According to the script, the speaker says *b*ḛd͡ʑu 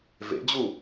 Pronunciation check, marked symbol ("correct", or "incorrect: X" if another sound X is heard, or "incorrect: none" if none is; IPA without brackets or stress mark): incorrect: v